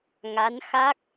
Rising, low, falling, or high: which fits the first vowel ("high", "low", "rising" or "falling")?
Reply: rising